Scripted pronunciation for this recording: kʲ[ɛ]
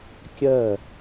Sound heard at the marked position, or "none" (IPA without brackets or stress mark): ɜ